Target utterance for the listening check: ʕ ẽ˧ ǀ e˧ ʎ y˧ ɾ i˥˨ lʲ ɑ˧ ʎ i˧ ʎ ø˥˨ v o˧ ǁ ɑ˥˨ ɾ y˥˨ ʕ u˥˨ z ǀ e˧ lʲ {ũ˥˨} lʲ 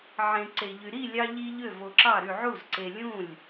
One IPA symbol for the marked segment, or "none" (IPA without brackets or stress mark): ũ˥˨